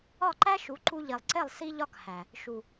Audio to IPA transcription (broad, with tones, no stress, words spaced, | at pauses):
ɒ˦˨ǃæ˦ʃu˨˦ ǃu˧ʎi˨lˠǀe˦˨lˠ si˦ʎɒ˦khæ˨ | ʃu˨